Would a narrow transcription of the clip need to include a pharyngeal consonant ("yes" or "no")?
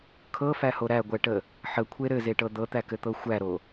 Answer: yes